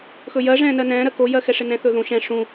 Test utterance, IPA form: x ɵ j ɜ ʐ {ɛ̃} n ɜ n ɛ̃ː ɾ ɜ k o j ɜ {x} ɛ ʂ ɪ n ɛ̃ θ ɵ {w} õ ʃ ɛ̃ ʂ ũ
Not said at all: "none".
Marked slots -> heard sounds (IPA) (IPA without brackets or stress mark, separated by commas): ɛ̃ː, x, ð